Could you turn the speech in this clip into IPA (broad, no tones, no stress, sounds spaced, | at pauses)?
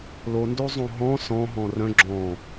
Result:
l o n d o zˤ õ ɦ ɔ̃ s ɔ̃ ɦ ɔ̃ r œ̃ ɡ͡ǁ ɔ̃